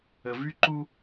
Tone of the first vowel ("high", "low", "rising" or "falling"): low